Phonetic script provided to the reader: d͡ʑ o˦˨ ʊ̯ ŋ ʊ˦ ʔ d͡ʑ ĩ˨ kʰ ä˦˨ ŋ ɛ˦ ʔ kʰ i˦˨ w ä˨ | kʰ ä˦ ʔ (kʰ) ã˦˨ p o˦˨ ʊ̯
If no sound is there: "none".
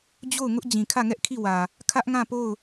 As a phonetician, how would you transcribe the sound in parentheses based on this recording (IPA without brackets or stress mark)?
ŋ